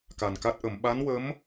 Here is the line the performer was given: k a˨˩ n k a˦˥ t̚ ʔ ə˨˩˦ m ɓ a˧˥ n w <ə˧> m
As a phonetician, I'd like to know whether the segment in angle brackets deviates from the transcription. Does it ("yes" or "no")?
yes